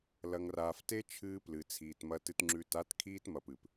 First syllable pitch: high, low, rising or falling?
low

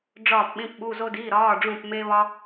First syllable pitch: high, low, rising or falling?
falling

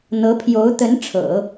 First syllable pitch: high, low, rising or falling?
rising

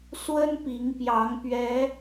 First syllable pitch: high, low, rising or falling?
high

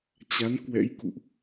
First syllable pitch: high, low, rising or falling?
rising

